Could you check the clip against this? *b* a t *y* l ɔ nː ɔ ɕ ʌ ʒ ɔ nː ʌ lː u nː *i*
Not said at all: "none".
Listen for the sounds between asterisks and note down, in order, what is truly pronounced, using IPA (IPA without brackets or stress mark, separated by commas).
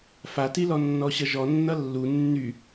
f, i, y